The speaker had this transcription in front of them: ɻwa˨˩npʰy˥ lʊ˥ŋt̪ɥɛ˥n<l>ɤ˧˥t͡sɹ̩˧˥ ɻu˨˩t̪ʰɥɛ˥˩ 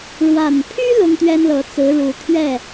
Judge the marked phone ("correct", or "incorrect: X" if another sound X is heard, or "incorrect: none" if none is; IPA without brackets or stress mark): correct